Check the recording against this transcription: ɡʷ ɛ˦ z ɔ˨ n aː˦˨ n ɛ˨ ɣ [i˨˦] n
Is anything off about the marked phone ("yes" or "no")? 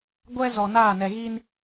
yes